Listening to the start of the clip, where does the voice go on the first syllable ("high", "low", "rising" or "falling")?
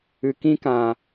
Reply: low